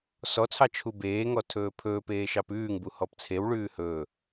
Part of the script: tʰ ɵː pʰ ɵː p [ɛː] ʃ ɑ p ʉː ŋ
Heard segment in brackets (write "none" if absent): eː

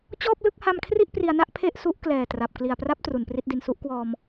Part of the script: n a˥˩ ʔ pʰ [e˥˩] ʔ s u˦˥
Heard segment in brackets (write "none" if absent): e˥˩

